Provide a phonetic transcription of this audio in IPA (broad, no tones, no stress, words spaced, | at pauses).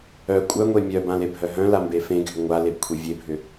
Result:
œ kʷʼœŋʷe mʲœbãlebʱœ ɦœ̃lambe fẽɡʱʏ ŋʷalebkʷʰe vʲebʱʏ